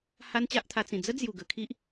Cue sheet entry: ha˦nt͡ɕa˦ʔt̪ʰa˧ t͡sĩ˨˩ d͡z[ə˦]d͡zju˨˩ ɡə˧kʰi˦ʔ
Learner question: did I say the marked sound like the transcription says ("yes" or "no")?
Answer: yes